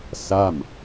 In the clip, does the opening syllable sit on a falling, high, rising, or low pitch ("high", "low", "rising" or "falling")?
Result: falling